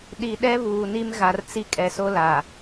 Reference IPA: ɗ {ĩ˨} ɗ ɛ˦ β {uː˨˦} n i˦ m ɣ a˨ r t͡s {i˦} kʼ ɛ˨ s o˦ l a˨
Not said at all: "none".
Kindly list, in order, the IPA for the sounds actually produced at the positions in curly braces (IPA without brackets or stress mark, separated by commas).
i˨, uː˨, i˦